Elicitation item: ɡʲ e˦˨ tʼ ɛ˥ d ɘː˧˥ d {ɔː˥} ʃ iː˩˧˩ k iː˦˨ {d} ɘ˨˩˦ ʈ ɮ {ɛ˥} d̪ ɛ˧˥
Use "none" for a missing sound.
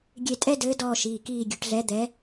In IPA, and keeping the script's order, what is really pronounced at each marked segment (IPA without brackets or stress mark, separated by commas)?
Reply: ɔː˦˨, ɡʲ, ɛ˧˥